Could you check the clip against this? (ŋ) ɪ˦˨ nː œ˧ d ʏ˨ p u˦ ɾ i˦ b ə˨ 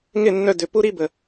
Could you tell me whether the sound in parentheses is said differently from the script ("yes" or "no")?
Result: no